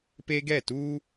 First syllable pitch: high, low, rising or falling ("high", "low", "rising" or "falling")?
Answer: high